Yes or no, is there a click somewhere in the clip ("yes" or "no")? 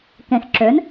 yes